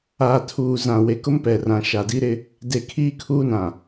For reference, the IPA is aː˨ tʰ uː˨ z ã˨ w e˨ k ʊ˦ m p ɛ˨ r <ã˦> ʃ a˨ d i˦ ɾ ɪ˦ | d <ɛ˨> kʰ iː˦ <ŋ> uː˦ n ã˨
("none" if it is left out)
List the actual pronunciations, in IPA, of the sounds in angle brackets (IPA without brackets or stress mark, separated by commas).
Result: ã˨, e˨, kʰ